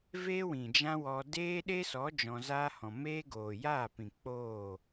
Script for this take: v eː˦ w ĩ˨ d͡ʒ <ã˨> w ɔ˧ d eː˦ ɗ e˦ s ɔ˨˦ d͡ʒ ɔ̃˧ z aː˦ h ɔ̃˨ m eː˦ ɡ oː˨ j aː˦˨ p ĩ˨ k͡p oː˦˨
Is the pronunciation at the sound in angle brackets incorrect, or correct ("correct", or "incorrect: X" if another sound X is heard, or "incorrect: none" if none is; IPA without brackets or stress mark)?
incorrect: ã˦